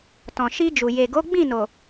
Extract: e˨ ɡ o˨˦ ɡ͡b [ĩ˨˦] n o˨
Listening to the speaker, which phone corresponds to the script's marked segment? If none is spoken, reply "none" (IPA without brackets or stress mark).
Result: ĩ˦˨